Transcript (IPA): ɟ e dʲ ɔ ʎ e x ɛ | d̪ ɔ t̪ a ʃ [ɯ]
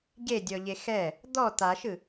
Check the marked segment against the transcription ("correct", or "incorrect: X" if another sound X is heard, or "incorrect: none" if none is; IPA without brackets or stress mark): correct